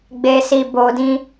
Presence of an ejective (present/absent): absent